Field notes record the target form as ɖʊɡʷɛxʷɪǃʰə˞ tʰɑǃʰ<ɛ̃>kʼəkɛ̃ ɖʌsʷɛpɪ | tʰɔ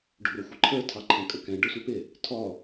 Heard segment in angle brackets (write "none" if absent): ɛ̃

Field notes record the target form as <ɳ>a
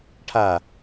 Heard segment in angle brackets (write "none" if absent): ʈʰ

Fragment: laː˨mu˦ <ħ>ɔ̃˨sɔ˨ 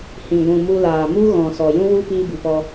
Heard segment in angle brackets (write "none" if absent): ɣ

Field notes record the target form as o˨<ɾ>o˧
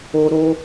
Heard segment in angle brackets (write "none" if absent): ɾ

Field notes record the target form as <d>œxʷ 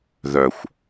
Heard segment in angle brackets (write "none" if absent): ð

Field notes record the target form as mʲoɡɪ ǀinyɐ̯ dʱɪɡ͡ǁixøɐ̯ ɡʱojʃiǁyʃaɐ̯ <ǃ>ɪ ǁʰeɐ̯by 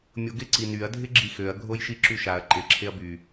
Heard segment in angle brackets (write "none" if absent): ǃ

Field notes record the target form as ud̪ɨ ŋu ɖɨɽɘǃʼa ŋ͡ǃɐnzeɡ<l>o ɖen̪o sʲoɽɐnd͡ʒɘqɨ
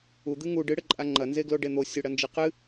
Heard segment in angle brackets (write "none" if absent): l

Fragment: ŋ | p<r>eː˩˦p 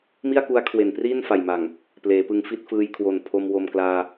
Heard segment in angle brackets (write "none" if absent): l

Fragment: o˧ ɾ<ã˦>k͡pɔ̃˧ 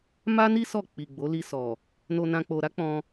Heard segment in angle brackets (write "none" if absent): a˦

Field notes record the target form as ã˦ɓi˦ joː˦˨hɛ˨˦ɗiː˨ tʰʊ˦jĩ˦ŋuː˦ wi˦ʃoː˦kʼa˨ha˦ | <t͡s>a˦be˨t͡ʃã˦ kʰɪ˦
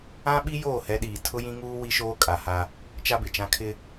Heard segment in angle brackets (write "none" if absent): t͡ʃ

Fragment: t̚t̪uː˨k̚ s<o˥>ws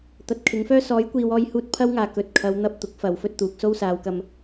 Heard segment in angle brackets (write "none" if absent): o˥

